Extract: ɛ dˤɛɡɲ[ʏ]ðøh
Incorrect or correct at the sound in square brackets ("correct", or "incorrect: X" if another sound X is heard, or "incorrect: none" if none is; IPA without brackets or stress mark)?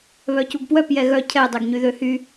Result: incorrect: y